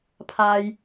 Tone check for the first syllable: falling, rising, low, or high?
high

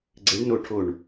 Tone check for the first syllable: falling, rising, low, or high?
rising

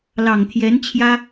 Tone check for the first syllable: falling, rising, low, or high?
low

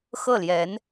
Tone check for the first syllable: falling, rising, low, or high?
falling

